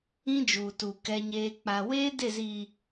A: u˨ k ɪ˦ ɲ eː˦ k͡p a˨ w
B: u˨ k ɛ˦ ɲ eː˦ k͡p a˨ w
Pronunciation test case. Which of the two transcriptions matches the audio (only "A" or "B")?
B